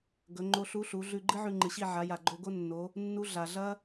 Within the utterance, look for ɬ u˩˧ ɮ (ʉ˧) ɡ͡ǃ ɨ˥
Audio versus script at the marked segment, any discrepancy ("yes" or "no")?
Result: no